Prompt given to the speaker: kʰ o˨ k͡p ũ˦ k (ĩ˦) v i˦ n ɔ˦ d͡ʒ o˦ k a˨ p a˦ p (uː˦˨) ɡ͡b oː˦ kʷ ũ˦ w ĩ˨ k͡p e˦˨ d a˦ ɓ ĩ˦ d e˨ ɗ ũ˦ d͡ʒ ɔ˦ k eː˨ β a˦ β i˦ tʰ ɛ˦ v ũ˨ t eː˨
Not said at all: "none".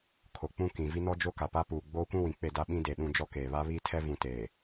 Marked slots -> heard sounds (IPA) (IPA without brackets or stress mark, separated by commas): ĩ˨, uː˨